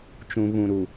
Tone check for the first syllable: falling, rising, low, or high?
low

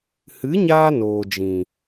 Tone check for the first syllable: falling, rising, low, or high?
rising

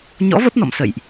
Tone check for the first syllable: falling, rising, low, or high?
rising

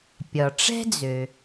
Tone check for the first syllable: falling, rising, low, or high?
low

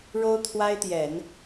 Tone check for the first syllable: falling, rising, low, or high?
high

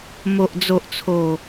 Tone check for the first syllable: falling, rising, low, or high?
low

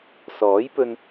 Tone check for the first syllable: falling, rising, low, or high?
rising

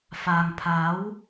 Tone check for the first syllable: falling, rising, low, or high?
low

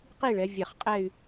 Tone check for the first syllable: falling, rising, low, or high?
falling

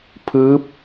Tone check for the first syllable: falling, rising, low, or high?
rising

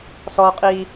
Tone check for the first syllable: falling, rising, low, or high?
high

